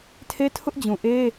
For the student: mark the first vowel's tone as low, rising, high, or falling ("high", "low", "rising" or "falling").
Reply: high